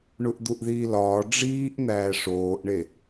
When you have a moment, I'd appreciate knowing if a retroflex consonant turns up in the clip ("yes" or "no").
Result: yes